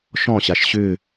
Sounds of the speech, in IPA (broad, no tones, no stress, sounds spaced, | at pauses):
ʃ ɔ̃ ɕ a ʃ ɕ ʏ